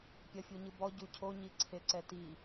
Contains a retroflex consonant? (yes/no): no